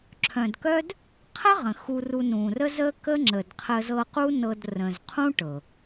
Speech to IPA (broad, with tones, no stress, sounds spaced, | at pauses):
ǁʰ œ̃˨ d k œ˦ d | qʰ ə˦ ʁ ə̃˨ x u˧ r u˧ n ũ˨ r ə˦ z ə˦ k ə˦ ŋ͡ǁ ə˨ d qʰ ə˧ z ɤ˧ q u˦ n ɤ˧ d r ə̃˨ z qʰ ũ˦ ʈ ɤ˨